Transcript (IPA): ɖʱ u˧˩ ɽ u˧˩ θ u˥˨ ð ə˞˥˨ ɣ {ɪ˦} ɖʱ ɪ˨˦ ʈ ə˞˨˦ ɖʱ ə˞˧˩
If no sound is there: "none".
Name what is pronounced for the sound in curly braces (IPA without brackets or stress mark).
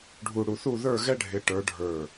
ɛ˦